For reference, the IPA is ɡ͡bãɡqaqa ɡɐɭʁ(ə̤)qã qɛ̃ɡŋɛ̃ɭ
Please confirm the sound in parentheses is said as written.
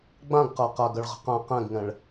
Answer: yes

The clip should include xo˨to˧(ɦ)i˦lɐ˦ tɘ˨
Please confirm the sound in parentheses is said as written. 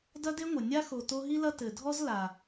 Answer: yes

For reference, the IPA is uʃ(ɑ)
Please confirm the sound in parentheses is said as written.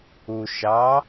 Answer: yes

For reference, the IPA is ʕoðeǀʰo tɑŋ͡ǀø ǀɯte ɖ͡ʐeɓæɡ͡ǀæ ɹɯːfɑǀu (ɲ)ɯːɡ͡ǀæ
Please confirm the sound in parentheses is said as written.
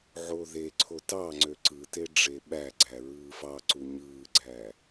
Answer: yes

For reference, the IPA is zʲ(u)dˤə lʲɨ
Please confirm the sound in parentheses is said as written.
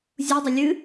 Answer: yes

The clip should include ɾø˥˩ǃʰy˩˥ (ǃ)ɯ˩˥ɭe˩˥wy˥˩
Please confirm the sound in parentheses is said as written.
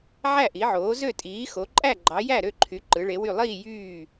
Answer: yes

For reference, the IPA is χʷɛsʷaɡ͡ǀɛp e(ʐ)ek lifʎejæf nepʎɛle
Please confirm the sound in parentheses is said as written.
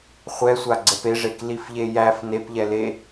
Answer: yes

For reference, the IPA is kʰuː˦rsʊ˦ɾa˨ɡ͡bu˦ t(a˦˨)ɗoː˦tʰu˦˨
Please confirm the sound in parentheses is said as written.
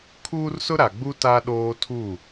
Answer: no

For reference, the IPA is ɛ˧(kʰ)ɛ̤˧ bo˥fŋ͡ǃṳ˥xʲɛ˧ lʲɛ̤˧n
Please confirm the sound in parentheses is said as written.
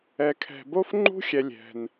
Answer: yes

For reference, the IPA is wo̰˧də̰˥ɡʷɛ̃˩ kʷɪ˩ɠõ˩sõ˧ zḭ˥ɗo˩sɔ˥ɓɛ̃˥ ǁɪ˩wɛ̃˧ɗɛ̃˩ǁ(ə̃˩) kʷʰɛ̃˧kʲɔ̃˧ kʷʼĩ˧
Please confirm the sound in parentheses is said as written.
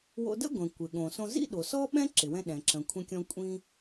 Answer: yes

